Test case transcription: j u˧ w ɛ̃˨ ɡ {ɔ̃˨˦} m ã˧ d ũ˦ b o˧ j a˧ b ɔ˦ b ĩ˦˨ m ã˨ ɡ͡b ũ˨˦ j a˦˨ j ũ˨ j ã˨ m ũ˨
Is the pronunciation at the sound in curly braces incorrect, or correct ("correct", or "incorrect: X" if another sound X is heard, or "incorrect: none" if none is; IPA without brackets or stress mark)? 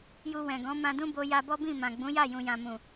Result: correct